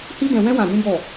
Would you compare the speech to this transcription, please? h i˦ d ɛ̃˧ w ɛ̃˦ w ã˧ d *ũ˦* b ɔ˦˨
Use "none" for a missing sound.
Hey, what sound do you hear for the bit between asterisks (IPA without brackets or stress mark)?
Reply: ũ˦